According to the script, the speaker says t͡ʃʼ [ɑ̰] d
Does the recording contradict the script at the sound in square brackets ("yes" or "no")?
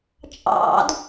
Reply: no